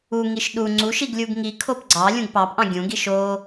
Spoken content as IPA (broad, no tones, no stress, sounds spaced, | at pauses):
u ŋ i ʃ ɗ u ŋ͡ǀ u ʃ i ɡ lʲ u ɡ ŋ i kʰ o p ɡ͡ǀ ɑ lʲ ũ ɡ p ɑ p ʔ ɑ̃ ɡʲ ũ ɡ i ʃ o